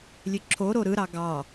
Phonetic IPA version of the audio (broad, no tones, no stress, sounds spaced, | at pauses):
lʲ ø ǁʰ o ɾ o ɾ ɯ ɾ ɑ ɡ ɑ